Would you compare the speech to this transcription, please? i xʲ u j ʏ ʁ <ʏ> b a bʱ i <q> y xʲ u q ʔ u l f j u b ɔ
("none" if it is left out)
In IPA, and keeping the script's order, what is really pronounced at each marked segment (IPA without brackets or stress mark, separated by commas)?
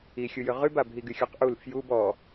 y, ɡ